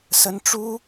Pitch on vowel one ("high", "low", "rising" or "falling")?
high